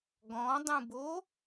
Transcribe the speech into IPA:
ɡ ɔ̃ dˤ ũ b o

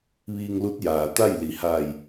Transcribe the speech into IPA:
ʋ iː˧ ŋ l u˧˥ t̚ j aː˩ t̪ a˥˨ j l i˩˧ h aː˧˩ j

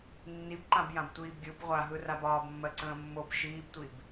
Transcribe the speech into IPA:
nː i b ǃ ã b j ã b tʷ iː b ɡʲ ɯ b ʁʷ a ɦ ɯ r a b ɒː b mː ɜ ǀ ə̃ː mː o b ʃ iː b tʷ i b

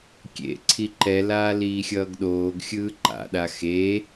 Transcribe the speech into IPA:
kʲ ḛ ǀʰ i ǃ ɛ l aː l iː xʲ ʌː ɡ ɗ oː ɡ xʲ ɯː ǃ a̰ ɗ a x e

